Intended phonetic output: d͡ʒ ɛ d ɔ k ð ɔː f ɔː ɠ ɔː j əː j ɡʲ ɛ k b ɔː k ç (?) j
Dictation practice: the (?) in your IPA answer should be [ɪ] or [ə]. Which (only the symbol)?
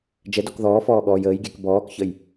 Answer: ə